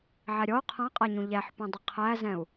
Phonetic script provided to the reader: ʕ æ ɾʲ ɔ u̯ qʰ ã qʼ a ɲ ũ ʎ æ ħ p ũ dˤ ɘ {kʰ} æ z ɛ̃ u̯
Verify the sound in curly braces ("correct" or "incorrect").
incorrect